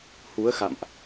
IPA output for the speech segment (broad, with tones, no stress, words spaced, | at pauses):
hu˨˦ə̯xa̰˧˨mʔ